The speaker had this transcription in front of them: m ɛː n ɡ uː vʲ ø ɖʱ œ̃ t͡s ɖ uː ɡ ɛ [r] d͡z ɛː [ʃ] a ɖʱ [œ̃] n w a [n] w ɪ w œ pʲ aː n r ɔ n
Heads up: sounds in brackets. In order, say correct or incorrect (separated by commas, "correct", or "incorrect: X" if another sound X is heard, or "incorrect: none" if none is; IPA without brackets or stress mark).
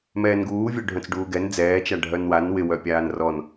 incorrect: n, incorrect: t͡ʃ, incorrect: œ, correct